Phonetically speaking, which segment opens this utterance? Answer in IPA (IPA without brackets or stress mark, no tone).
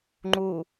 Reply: ŋ͡ǃ